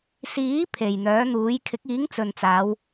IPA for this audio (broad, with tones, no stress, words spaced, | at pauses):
siː˨˥ pʰe˨˩jn̪œː˨˥n̪uː˨˥j kʰɪ˨˥k̚iː˨˥ŋt͡sɵ˨nt͡saː˨˧w